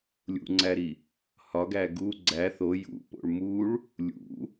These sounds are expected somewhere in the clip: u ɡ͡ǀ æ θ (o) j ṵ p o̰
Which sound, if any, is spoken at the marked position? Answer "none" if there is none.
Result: o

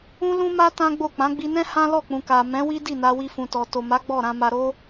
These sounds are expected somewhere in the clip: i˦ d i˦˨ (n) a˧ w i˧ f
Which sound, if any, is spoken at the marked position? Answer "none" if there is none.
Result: n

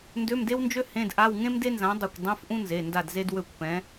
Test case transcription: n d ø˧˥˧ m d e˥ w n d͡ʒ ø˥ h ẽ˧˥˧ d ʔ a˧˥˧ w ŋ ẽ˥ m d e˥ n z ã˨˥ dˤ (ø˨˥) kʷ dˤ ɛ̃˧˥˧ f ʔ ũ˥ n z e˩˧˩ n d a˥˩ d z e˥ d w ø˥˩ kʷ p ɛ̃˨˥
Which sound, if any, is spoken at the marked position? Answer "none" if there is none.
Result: ø˥˩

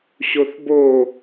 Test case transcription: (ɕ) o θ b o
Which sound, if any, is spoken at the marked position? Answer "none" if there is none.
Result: ɕ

